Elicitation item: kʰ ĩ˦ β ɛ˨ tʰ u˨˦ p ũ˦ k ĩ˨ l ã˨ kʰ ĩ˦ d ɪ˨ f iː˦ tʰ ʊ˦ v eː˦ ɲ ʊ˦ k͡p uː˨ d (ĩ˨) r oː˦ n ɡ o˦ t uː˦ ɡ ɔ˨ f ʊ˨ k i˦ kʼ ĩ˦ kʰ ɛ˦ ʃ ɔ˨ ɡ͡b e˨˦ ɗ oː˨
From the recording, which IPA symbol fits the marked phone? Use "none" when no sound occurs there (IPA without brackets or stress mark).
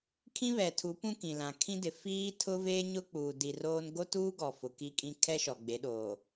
i˨